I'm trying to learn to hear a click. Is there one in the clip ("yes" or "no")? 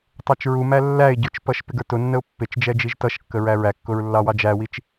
no